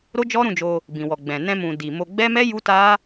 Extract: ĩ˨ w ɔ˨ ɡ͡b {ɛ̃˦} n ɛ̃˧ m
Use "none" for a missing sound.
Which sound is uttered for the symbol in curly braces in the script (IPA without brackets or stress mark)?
ɛ̃˨